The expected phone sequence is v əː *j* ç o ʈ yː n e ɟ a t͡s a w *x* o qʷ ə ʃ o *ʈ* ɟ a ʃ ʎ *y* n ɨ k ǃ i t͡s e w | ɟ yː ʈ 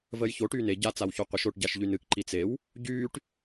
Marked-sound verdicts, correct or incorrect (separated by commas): correct, incorrect, correct, correct